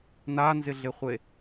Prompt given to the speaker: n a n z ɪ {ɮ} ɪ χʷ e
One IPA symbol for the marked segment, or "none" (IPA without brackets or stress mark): ɮ